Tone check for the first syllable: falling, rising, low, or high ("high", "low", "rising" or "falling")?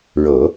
low